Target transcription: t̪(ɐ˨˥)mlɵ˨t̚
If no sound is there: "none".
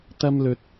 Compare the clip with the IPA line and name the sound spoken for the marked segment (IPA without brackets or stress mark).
ɐ˧